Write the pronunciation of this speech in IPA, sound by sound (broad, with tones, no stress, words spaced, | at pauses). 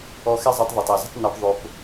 ɔ˧xɛ˦zˤɛ˧tˤ ðˤe˨tˤɜ˨zə̤˦tˤ nɔ˧p ðˤo˧p